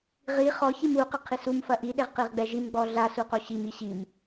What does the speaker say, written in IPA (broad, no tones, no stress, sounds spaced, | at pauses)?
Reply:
ʁ i χ ɔ ç i m u q ɘ qʰ i s u m f ɐ ʔ i ɗ e ʁ q i ʁ ɡ͡b ɛ ʒ i m ɡ͡b ɔ ɮ a s u q o ɕ i m i ɕ i m